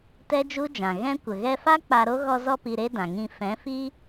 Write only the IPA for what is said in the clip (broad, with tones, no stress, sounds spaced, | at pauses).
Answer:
t ɛ˦ d͡ʒ u˦ d͡ʒ ã˨ ɣ ɛ̃˦ kʷ ə˨ ɣ ɛ˧ f a˦ k͡p a˧ ɾ o˦ ɣ ɔ˧ z ɔ˧ p i˨ ɾ e˦ d ã˨ ŋ ĩ˧ f ɛ̃˨˦ f i˦